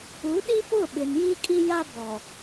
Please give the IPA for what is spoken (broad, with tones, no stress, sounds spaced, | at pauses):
u˨˦ ɗ i˦ p ʊ˦˨ ɓ ɪ˨ n j i˦ kʼ i˦ j a˦ b ɔ˨